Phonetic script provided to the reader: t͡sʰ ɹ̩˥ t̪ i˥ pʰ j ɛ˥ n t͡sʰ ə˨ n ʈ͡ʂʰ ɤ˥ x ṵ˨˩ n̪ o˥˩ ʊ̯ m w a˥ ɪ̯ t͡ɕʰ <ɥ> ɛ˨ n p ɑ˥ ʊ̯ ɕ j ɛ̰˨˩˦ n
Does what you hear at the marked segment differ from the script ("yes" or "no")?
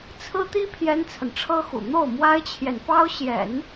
yes